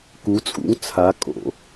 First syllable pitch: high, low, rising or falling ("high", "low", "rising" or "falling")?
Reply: rising